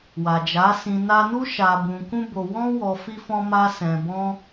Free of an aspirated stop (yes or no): yes